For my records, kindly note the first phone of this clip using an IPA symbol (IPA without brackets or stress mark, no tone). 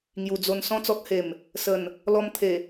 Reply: ŋ